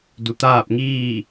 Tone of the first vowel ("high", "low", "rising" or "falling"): low